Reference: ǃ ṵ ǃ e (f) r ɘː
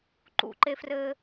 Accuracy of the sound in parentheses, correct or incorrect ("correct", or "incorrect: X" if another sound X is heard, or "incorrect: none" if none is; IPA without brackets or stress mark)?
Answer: correct